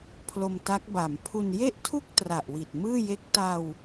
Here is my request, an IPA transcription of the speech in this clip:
pʰ l o˧ m t a˦˥ k̚ b a˩˦ m pʰ u˧ n j e˥˩ ʔ tʰ u˥˩ k̚ t r a˨˩ ʔ w i˨˩ t̚ m ɯː˥˩ j e˦˥ k̚ t a˧ w

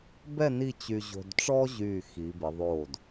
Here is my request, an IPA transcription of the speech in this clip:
b ɛ˥˧ n i˥˧ t͡ɕ y˧ ʑ o̤˧ d ʈ͡ʂ ɔ˥ ʑ yː˧˩ x i˩˧ b ɪ˩˧ ðˤ oː˧˩ d

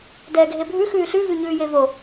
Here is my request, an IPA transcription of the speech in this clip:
d ɛː ɡʱ e bʱ ʉ x ʉː ɬ ʉ v ʉ ɲ ʉː j e v o

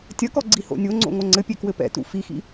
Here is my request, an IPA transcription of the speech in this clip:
tʲ ɐ k ɔ ɡ͡ǀ i h o̰ nʲ o ŋ͡ǀ o̰ ŋ o ŋ͡ǀ ɘ pʲ e k w ɘ p ɛ̰ t ṵ f i x ḭ

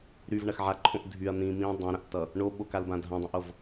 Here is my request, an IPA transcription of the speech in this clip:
ɾ y v ɳ ɐ x ʕ a ǃʰ õ ʔ dʱ y ɐ̯ n̪ ĩ m ĩ dˤ ɐ̃ ɾ ɐ̃ ʔ t ʌ | ɳ o ɓ o k a l b ã dʱ ã dˤ ĩ ʔ o v

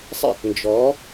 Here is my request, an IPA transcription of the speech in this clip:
sˤ ɛ̰˧˩ t n d͡ʒ ɔ˩˧

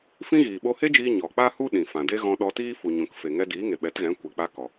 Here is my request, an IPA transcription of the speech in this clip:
f ĩ˦ ɣ iː˨ ɓ o˧ h e˦ d͡ʒ iː˧ ɲ ɔ˨ k͡p a˦ h u˦ ɗ ĩ˨ f ã˨ d e˦ ɣ ɔ̃˧ ɗ ɔ˧ t iː˦ f u˨ ɲ ũ˨ k f e˨ ŋ ɛ˧ d iː˨˦ ŋ e˨ ɓ ɛ˨˦ t ɣ ɛ̃˨˦ kʷ ɛ˨ k͡p a˧ k ɔ˨

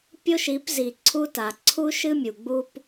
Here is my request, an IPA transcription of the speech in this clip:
pʲ o˦ ʃ i˨˦ p z i˨ ǀʰ u˦ t a˨ ǀʰ u˦ ʃ ɨ˦ mʲ u˨ ɡ͡b u˦ p

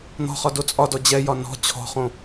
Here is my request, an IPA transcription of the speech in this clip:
n̪ ɔ̤ χ ɒ d o t͡sʼ ɒ d ɔ d͡ʑ ɛ j ɒ n ɔ̤ t͡ɕʰ ɔ̤ χ õ

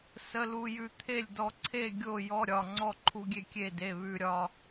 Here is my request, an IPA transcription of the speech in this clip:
s ə˧˥˧ l u˧ j ʉ˧ t̪ʰ e˥˨ lʲ d ɔ˧ ǀʰ e˥˨ ɡʲ o˥˨ j ɔ˧˥˧ ɾʲ ɒ˥˨ ŋ͡ǀ ɔ˥˨ ǃʰ u˧ ɡʲ e˥˨ kʲ e˥˨ d e˧˥˧ β ʉ˧ ɾʲ ɒ˧

